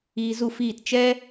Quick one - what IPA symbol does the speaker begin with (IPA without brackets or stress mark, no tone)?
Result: iː